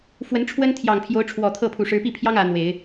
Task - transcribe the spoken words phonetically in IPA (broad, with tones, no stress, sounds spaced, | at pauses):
f w ə˧˥ n ʈ͡ʂʰ w ə˥ n t̪ʰ j ɑ˨˩ ŋ pʰ j o˧˥ ʊ̯ ʈ͡ʂʰ w ɔ˨˩ t̪ʰ ɤ˥˩ pʰ u˨˩ ʂ ɻ̩˧˥ p i˥˩ pʰ j ɑ˥ ŋ ä˧˥ n̪ w e˨˩˦ ɪ̯